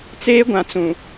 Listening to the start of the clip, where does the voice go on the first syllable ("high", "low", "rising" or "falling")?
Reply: high